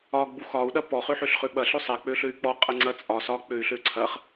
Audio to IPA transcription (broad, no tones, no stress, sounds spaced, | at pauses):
ɒ ɡ͡b u x ɒ u̯ ɗ ɐ p ɔ χ ø ħ ø ɬ χ ø ɓ ɐ ɬ ø sˤ ɛ k͡p ø ɬ ø y̯ k͡p ɔ qʼ ɐ ŋ͡ǀ ɐ t͡sʼ ɒ s ɒ k͡p ø y̯ ɬ ø ǀʰ ɐ χ